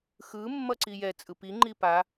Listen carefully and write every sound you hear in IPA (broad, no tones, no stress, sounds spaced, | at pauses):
x ɯ mː ʌ ǀ i j ɛ t͡sʼ ɯ p i ŋ͡ǃ i p a